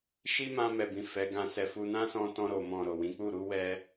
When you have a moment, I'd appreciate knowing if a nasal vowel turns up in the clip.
yes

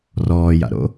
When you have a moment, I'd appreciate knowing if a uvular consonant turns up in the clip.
no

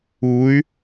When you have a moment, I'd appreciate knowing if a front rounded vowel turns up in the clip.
yes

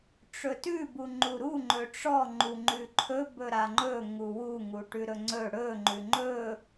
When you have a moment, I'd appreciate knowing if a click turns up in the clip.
yes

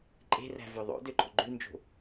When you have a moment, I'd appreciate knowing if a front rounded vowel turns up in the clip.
yes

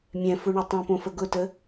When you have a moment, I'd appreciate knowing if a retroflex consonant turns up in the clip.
yes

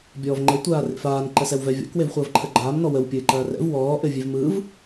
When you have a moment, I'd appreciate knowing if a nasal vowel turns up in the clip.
no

